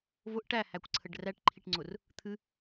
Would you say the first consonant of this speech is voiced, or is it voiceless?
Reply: voiced